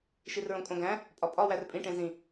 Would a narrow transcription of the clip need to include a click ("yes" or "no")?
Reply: no